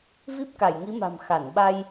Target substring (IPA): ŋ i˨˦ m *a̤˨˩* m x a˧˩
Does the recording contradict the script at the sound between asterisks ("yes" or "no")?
no